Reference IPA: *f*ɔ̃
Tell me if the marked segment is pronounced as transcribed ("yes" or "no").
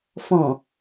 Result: yes